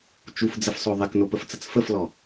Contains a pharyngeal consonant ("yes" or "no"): no